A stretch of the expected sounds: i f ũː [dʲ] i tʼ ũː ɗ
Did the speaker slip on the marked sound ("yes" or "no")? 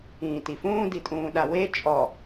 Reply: yes